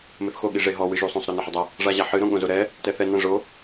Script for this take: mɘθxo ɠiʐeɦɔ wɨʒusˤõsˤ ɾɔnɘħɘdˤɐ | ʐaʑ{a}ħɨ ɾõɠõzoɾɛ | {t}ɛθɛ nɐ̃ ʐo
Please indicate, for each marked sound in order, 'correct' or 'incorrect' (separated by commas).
correct, correct